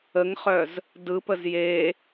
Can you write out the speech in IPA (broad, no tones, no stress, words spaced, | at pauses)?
əŋχœz | dɯpəz je